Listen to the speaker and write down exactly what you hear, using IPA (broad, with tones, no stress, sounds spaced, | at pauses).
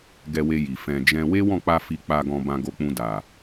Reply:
ɡ ɛ˧ w e˧ j i˨ f ɛ̃˨ d͡ʒ ɛ̃˧ w e˦ w ɔ̃˦˨ k͡p a˧ f i˧ k͡p a˧ ɡ ɔ̃˧ b ã˧ ɡ o˧ k͡p ũ˧ d a˨